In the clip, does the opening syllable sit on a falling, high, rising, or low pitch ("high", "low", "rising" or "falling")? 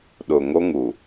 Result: low